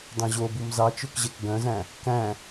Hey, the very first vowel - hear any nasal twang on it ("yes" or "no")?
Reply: yes